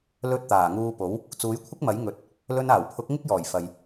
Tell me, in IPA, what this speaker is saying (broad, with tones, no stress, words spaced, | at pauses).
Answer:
lɵ˧t̚ t̪aː˨˩ŋuː˧po˨˥w | t͡suː˨˥jkʷʰɪ˥k̚mɐ˨˥j ŋɵ˨˥t̚ | lɵ˧naː˨˩wpʰʊ˨˥k̚ ŋɪ˥k̚jɔː˨˩j fɐ˨j